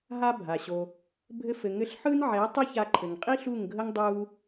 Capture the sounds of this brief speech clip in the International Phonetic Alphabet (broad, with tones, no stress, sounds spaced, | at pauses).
ɦ a˦ bʱ a˨ ɕ o˧ | bʱ ɘ˧ f ɘ˨ ŋ ɘ˧ ɬ ħ ɯ˦ n ʕ ɛ˨˦ tˤ ɵ˦ ç a˧ ǃʰ ɘ˨ ŋ qʼ i˦ ɬ u˦˨ ŋ ɡʱ ə˦ ŋ dˤ u˦